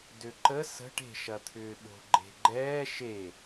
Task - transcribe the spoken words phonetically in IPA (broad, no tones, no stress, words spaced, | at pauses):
døǃə sə̤ʈ e̤ʃɐt̪ʰʏːɓo̤ ɡ͡ǃe̤ɡ͡ǃɛː ʃe